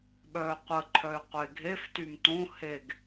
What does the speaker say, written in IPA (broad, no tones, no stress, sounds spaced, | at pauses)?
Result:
ɓ œː qʷ ə ǃʰ œ y̯ qʷ e ɡʱ e f t y m t õ h e ɡ